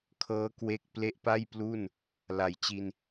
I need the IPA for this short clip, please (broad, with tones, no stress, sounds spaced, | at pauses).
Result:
kʰ ɤː˦˥ k w e˦˥ k̚ p l e˦˥ ʔ p a˥˩ j p l u˥˩ n | l a˩˦ j t͡ɕ i˧ n